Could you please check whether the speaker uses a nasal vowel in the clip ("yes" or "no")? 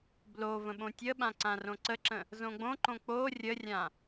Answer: yes